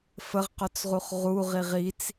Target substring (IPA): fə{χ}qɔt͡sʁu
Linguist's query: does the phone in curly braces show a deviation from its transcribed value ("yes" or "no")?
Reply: yes